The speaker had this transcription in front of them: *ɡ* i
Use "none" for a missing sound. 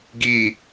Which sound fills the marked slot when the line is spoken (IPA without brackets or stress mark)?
ɡ